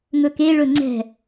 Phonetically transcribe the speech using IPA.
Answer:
ŋ ɵ k e ɭ ɵ ŋ͡ǀ ɛ̤

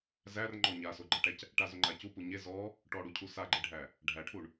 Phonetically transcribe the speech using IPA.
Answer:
z æ r ŋ͡ǃ ɔ ɲ a s o ɡ͡ǃ æ ʈ æ c | ʈ a z o ŋ͡ǃ a c u p u ɲ e z ɔ | ʈ ɔ ɽ u cʰ u s a ɡ͡ǃ e ɖʱ æ | ɖʱ æ ʈʰ u ɳ

